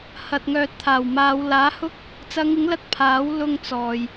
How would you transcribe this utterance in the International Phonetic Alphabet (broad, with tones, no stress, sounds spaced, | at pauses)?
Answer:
h ɐ˨ t̚ ŋ œː˨ t̚ t̪ʰ aː˨˩ w m aː˨˧ w l aː˨˥ h ʊ˥ k̚ | t͡s ɐ˨˧ ŋ ɪ˨˥ ŋ l ɐ˧ t̚ pʰ aː˨˥ w l ʊ˧ ŋ t͡s ɔː˨ j